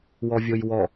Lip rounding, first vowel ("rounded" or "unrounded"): rounded